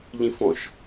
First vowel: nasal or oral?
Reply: nasal